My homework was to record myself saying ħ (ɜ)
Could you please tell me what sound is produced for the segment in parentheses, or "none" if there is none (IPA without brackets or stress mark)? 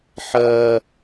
ɜ